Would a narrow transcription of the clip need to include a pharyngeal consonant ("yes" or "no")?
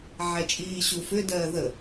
yes